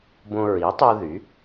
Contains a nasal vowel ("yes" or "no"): yes